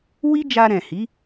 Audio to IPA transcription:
w i˦ d͡ʒ a˧ ɾ ɛ̃˨ h i˨˦

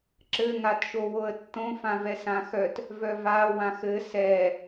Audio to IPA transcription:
ǁ ɘ ŋ a t ʃ o w o ə̯ tː õ f ã v ɛ s ã x œ t | v œ v a w ã x ɘ s ɛ

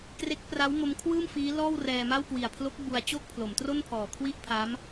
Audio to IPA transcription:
k r e˦˥ k̚ p r a˦˥ w m o˦˥ m kʰ w ɯː˥˩ m f iː˦˥ l ɔː˥˩ w r ɛː˧ m a˥˩ w k w i˨˩ a̯ pʰ l o˦˥ k̚ b u˧ a̯ t͡ɕ o˥˩ k̚ pʰ l o˩˦ m t r o˥˩ n pʰ ɔː˨˩ kʰ w i˥˩ ʔ pʰ a˦˥ m

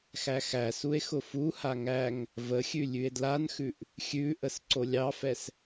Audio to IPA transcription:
x æ x æ s u e̯ x ʊ f u h a ŋ æ ŋ | v ə xʲ ʉ lʲ ʉ e̯ d l a n x ʉ ʔ | xʲ ʉ ʔ ə s ǀ o lʲ ɑ f ɛ s

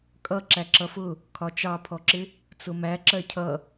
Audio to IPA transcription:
kʼ ʌ ǁ æ ǁ ʌ f ʊ | kʰ ɒ t͡ʃ ɑ pʰ ɔ ǁ ɪ | t͡s ʊ m æ ǁ ɜ cʰ ʌ

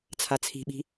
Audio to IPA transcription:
t͡sʰ a t͡sʰ i̤ ɓ i̤

